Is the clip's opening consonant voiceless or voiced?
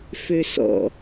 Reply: voiceless